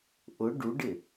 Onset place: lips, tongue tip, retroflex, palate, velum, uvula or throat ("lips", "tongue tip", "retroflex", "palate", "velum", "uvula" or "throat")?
throat